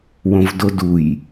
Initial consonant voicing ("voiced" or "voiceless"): voiced